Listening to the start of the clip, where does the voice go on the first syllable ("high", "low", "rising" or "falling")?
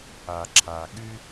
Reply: low